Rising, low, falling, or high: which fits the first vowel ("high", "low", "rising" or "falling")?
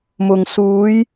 low